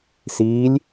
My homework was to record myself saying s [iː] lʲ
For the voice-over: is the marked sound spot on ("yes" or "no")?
yes